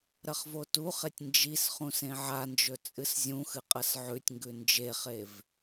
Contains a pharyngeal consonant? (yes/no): yes